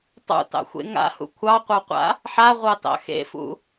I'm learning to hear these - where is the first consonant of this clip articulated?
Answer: tongue tip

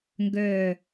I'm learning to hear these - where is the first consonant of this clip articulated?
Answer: velum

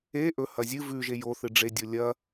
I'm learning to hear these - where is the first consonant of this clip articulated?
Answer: throat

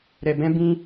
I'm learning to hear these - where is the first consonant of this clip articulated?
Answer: tongue tip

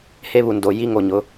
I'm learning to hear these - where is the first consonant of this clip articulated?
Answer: throat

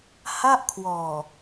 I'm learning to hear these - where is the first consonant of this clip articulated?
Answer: throat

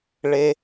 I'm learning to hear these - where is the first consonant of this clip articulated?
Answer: retroflex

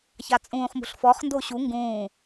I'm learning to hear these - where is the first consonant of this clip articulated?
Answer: palate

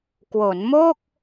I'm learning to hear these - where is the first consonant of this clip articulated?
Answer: velum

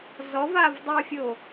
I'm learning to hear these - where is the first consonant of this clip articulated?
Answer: tongue tip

